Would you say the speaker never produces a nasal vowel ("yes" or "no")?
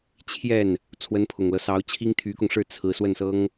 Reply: yes